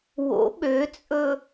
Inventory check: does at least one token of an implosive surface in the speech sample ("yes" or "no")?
yes